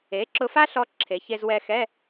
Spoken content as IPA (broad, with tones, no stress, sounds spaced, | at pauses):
e˩˥ ǁ ʊ˧ f a˥ ɬ ɔ˧ ǁʰ e˩˧ ç e˧ z w ɛ˧ x ɛ˧˥˧